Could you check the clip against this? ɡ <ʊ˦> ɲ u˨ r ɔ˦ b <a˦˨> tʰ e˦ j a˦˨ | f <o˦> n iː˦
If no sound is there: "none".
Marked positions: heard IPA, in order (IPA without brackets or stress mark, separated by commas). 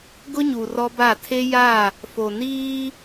ʊ˦, a˦˨, o˨